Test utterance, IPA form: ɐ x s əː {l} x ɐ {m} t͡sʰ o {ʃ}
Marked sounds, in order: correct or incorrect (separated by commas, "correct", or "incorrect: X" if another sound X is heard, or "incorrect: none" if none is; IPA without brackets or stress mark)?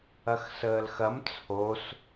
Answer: correct, correct, incorrect: s